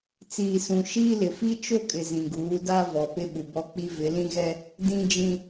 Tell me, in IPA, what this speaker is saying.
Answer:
t͡s iː˨ s ũ˨ ʃ iː˦ l ɪ˨ f i˦ t͡ʃ o˦ kʼ ɪ˨ z ĩ˨ ɡ uː˨˦ d a˦ v ɔ˨ p ɪ˦ ɓ u˨ b ɔ˦ k͡p i˦ v ɪ˨˦ l ĩ˦ ɣ ɛ˦ | d ĩ˦ d͡ʒ ĩ˦

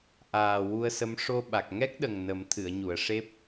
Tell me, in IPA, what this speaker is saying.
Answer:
ʔ aː˨˩ w u˧ ə̯ s ə˧˥ m ʂ o˧ ɓ a˨˩ k̚ ŋ ɛ˦˥ k̚ ɗ ə˨˩ ŋ n ə˨˩˦ m t̪ʰ ɨ˨˩˨ ə̯ ɲ u˨˩˨ ə̯ ʂ e˦˥ p̚

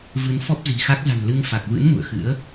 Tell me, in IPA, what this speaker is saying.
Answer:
v ɨ˨˦ n f ɔ˦˥ p̚ z i̤˨˩ x a˦˥ k̚ z a̤˨˩ n l ɨ˧ ŋ f a˨˩ k̚ v ɨ̰˧˥ n m ṵ˧˨ ə̯ x ɨ̰˧˥ ə̯

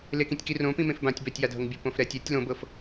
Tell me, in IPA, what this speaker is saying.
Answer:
l e k ĩ tʲ k i r õ p ĩ m ẽ f b ã tʲ b ɛ tʲ j a dʱ ɤ ŋ bʲ o p õ f ɾ ɛ tʲ ɛ tʲ l õ b ɤ f

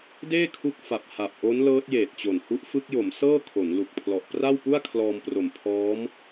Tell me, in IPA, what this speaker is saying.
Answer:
d eː˥˩ kʰ u˦˥ k̚ f a˨˩ p̚ h a˨˩ p̚ ʔ o˦˥ n l ɤː˦˥ t̚ j eː˨˩ t̚ t͡ɕ o˨˩ n h u˦˥ ʔ f ɯ˦˥ k̚ j o˩˦ m s ɤː˥˩ kʰ o˩˦ n l u˨˩ k̚ pʰ l ɔ˨˩ ʔ p r a˥˩ w p u˥˩ a̯ kʰ l ɔː˧ m p r o˨˩ m pʰ ɔː˦˥ m

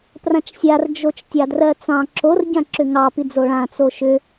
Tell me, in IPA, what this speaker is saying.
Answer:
p r ã t͡ʃ sʲ a r d͡ʒ o t͡ʃ tʲ ɑ d r ɜ t͡s ɑ̃ ǁ o r ɟ ã ǁ ʏ ŋ ɑ p i d͡z o ɭ ã t͡s o ʃ ʏ

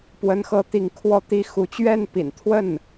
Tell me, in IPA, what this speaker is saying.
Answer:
p w ə˧˥ n x ɤ˧˥ t̪ i˧˥ ŋ kʰ w ɔ˥˩ t̪ i˥ x u˧˥ t͡ɕ ɥ ɛ˥˩ n p ḭ˨˩ n t̪ʰ w ə˥˩ n

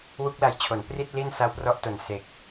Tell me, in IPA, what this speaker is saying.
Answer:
w u˦˥ k̚ l a˧ j t͡ɕʰ o˩˦ n p r i˥˩ t̚ l i˥˩ n s a˦˥ w p r ɔ˦˥ ʔ t o˨˩ n s e˨˩ k̚

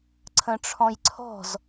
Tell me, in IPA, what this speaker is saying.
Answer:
ǀʰ ə̃ ʈ͡ʂʰ ɔ̃ j ǀʰ ɔ̤ z

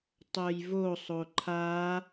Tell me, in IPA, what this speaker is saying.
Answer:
tˤ o j v o sˤ o ǃʰ a

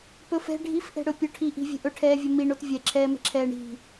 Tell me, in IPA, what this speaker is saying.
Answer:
p ɵ f ɛ̤ ɖʱ i f ʔ ɛ̤ ɽ ɵ pʲ o ʈʰ i ʔ i̤ vʲ ɛ̤ ʔ ɵ ʈʰ ɛː vʲ ɵ m i ɳ o t vʲ ɛ ǁʰ ɛː m ɛ̤ ǁʰ ɛː ɳ i̤

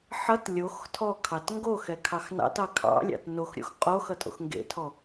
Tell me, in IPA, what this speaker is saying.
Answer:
ħ ʌ t lʲ o x tʰ ɔ kʰ ɑ t ŋ ɡ o x ɛ kʰ ɑ x n ɑ̰ t ɑ kʰ ɑ̰ lʲ ɑ̰ t n o x ɾʲ o̰ x qʼ o x ʌ tʼ o̰ x ŋ ɡ ḛ tʰ ɔ

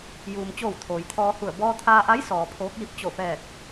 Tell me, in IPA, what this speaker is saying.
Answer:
j uː˩ m t͡ɕ oː˧˩ w t̪ʰ oː˩ j t̪ʰ ɔː˧ h u˧˩ ə̯ b ɔː˧ t̪ʰ aː˧ ʔ a˧˥ j s ɔː˩ pʰ oː˧˥ k̚ j i˧˥ p̚ t͡ɕ o˧˩ f ɛː˧˩ k̚

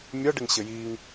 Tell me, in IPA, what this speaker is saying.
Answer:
mʲ ɒ ɖ ɪ ŋ ɕ ɘ j i ŋ

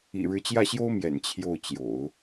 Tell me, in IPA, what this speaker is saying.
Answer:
ḭ˨˩ ɻ ɻ̩˧˥ t͡ɕ j ä˥˩ ɕ j o˥ ʊ̯ m j ɛ̰˨˩ n t͡ɕʰ j o˥˩ ʊ̯ t͡ɕ j o̰˨˩˦ ʊ̯

